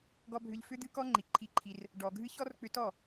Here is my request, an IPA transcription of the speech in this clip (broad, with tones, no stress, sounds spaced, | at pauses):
ɡ ɔ˧ bʱ ʏ˧ ʎ f ʏ˦ d̪ ɨ˦ k ɔ˦ ŋ͡ǃ i˨ ǃʰ i˧ ǃʰ i˧ r | ɖ ɔ˨ ɡʱ ɨ˦ ç ɔ˦ r k͡p ʏ˧ t ɔ˦˨